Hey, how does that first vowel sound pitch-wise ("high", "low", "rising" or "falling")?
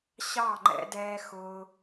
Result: falling